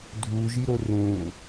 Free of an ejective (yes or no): yes